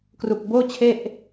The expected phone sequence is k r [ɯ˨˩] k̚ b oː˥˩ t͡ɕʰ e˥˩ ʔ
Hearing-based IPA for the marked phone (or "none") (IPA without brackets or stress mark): u˨˩